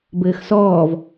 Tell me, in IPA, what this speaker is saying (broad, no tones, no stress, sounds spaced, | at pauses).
b ɘː x s ɔː v